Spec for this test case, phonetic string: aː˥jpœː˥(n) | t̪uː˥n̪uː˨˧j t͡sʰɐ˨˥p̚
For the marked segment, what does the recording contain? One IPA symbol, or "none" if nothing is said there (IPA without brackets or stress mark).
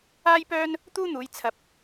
n